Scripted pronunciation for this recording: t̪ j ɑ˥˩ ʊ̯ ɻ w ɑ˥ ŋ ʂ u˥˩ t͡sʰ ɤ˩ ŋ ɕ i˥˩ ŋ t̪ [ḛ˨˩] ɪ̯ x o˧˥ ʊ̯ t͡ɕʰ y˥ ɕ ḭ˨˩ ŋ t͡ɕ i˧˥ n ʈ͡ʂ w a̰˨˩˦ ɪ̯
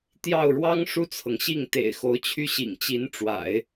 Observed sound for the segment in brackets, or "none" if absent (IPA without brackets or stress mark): ḛ˨˩